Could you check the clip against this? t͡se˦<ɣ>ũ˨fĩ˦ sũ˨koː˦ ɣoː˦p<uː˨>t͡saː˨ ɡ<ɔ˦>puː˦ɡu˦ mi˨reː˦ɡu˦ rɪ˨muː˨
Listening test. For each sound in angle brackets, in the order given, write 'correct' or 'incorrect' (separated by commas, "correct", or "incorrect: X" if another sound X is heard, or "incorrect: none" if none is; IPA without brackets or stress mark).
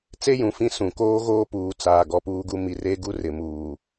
incorrect: j, correct, correct